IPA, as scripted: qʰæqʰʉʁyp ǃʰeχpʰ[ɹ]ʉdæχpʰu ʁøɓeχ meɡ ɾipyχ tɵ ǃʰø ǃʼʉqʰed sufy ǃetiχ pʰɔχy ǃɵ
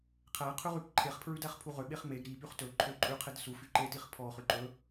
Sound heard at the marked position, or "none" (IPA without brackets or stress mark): ɹ